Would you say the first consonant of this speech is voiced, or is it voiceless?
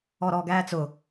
voiced